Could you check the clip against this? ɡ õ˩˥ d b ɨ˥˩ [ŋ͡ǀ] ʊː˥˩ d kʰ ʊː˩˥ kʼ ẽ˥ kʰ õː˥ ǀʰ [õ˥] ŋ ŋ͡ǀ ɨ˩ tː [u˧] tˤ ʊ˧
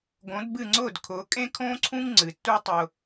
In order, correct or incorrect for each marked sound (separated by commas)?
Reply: correct, incorrect, incorrect